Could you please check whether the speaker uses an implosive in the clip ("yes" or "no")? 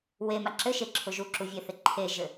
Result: no